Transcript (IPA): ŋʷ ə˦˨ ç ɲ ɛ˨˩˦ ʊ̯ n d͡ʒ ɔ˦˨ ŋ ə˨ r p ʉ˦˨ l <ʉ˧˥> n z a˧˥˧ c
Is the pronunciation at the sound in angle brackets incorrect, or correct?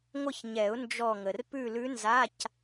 correct